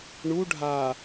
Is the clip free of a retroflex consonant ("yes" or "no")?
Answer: no